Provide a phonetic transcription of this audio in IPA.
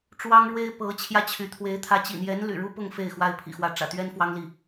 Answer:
ʈ͡ʂ w ɑ˥ ŋ ɻ w e˥ ɪ̯ p ɤ˧˥ t͡ɕʰ j ä˥˩ t͡ɕʰ y˧˥ t̪ʰ w e˧˥ ɪ̯ t̪ʰ ä˧˥ t͡ɕ ḭ˨˩ n̪ j ɛ˧˥ n l y̰˨˩ ɻ u˥ p ʊ˥˧ ŋ f e˥˩ ɪ̯ x w a˥ ɪ̯ pʰ ḭ˨˩ x w ä˧˥ ʈ͡ʂ ä̰˨˩ t̪ ɥ ɛ˥ n f w ɑ˥ ŋ l i˥˩

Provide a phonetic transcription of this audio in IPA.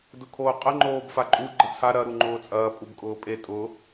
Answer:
d ʊ kʰ oː qʼ ə ŋ͡ǃ oː b f a ǃʼ u ɡ͡ǃ ə t͡sʰ a ɾ ɐ ɾ u ŋ͡ǃ ʊː t͡sʼ ɐː pʼ u b kʼ ʊː pʼ e tʼ ʊ

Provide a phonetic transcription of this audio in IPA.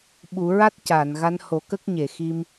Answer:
ɓ u˨˩˦ ɹ a˦˥ t̚ c a˨˩˨ n ɣ a˧˥ n h o˨˩ k ə˦˥ k̚ ɲ e˨˩˨ x i˧ m

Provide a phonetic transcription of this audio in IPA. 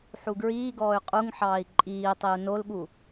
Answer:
ħ u ɡ ɹ iː ɡ ɔː y̯ qʼ u ŋ ħ ɑː i̯ ǃʼ iː tˤ i u̯ n o l ɠ u

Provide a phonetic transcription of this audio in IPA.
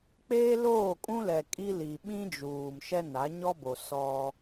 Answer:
k͡p eː˦ l oː˦˨ kʼ ũ˦ l ɛ˨ kʼ i˦ l i˨ ɓ ĩ˦ d͡ʒ uː˨ m ʃ ɛ˦ n a˨˦ ɲ ɔ˦ b o˨ s ɔ˦

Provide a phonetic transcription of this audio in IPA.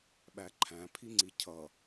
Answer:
ɓ æ ǃʰ æ̃ pʰ i ŋ͡ǀ i cʰ ʌ

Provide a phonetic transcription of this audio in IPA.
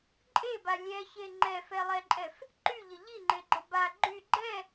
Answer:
ǃʼ e b a lʲ ɛ ç e ŋ͡ǃ ɛ f ɛ lˠ ɛ ǃʼ ɛ f | ǃ y ʎ ə ʎ i ŋ͡ǃ e ɡ͡ǃ ə b a ɡ͡ǃ y ɡ͡ǃ ɛ

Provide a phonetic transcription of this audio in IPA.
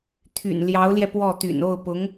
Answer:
t̪ʰ y̰˨˩ n l j ɑ˧˥ ʊ̯ l j ɛ˧ p w ɔ˥˩ t̪ y̰˨˩ n o˥˩ ʊ̯ p ʊ˧˥ ŋ

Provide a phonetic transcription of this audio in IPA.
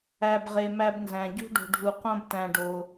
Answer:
æ˧ b ʁ e˧ m æ˥ b n z æ̃˧ ɟ ṳ˥ ɖ o̤˧ ɖʱ u˧ q õ˥ b t æ̃˧ ɖ o˧

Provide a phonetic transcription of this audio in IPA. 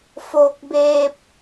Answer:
f oː˧ k̚ b eː˧ p̚

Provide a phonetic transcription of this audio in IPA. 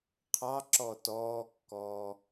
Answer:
qʰ ɑ ǁ ɔ t ɔː kː ɔː

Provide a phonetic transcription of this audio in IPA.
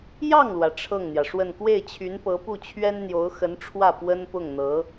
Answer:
j ɑ˥˩ ŋ l w ä˩ ʈ͡ʂʰ ɤ˥˩ ŋ n̪ j ä˩ ʂ w ə˥˧ n k w e˥˩ ɪ̯ t͡ɕʰ y˧˥ n p ɤ˧˥ p u˥˩ t͡ɕʰ ɥ ɛ˥ n n̪ j o˧˥ ʊ̯ x ə˧˥ n ʈ͡ʂʰ w ä˥˩ p w ə˥ n p ʊ˥˩ ŋ n̪ ɤ˧˥

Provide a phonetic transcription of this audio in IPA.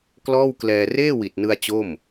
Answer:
k l ɔː˥˩ w k l ɛː˧ r eː˥˩ w i˨˩ t̚ n ɯ˧ a̯ t͡ɕ o˥˩ m

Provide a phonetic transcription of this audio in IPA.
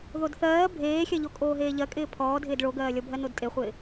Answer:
ð o d θ ɜː bʱ eː xʲ ɜ ʎ o kʼ oː ɦ eː ʎ ɜ kʼ ɪː pʰ ɔː dʱ ɪː d ɭ o ɡ ɜː lʲ ɔ bʱ ɜ n o d tʼ e χʷ ɪː

